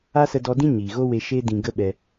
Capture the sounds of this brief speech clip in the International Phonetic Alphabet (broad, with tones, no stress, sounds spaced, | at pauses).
a˦ s ə˧ d ɔ˧ d ĩ˦ ɲ iː˨ ɣ o˦ w e˧ ʃ e˦ d ĩ˧ ɡ ə˦ ɓ ɛ˧